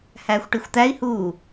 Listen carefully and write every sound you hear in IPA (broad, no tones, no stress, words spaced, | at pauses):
hæːxʷʈixʷt̪æi̯huː